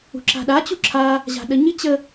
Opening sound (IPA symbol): ṳ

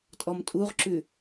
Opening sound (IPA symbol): tʼ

